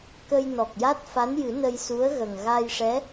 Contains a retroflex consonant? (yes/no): yes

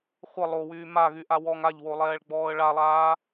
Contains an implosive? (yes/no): no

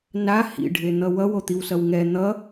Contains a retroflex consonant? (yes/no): yes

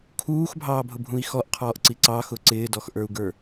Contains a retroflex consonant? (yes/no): no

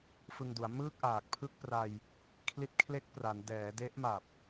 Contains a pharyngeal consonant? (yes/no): no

